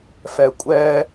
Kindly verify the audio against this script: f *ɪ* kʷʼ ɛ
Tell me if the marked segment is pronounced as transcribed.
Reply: no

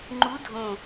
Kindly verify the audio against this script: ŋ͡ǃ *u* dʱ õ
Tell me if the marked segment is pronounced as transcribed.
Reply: yes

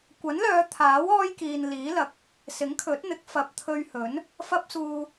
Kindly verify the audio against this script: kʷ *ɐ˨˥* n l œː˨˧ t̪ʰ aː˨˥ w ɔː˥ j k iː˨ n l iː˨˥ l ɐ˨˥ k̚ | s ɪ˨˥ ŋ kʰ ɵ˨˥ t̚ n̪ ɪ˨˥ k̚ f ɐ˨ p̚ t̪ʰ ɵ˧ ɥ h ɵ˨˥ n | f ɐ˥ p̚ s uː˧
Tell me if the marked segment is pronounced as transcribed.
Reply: yes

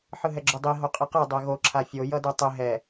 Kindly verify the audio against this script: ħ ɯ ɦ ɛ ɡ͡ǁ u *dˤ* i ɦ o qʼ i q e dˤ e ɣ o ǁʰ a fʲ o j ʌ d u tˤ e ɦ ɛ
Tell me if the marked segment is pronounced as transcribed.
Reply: yes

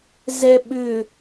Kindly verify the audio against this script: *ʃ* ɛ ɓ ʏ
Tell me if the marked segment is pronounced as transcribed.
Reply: no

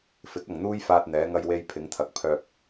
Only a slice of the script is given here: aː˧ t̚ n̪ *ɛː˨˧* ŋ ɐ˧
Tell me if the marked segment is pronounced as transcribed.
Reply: yes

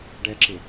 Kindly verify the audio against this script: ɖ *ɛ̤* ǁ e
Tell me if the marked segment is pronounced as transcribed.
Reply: no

